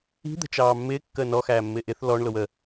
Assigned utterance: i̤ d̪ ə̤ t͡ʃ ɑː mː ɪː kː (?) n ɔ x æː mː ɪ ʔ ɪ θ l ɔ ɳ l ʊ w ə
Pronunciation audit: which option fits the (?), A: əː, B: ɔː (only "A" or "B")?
A